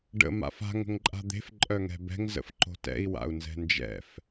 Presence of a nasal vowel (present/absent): absent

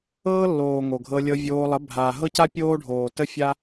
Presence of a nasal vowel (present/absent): absent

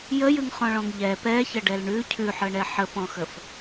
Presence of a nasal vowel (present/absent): present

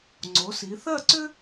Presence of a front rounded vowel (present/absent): present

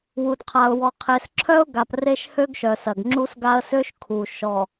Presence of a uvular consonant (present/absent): present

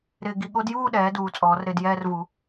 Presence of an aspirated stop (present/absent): absent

